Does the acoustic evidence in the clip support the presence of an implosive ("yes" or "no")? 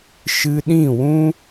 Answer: yes